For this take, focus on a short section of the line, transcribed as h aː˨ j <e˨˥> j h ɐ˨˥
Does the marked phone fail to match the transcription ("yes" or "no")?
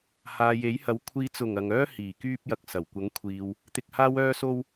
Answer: no